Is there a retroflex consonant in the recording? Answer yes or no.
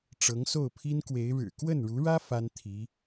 yes